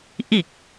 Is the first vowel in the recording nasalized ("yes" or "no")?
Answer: no